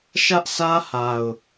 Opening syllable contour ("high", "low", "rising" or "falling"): high